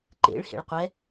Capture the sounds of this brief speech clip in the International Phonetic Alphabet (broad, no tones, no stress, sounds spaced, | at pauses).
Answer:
ǃ ḛ ɭ h ḛ ɭ qʷ ɛ